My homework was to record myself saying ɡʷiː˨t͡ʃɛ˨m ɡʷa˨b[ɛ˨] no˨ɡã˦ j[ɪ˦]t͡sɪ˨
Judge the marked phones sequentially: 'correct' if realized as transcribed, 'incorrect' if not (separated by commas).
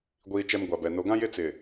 correct, correct